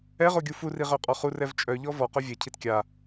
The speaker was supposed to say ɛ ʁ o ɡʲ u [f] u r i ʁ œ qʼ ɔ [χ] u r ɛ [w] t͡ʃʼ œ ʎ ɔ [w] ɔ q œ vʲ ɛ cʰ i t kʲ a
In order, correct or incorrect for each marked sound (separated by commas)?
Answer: correct, correct, incorrect, incorrect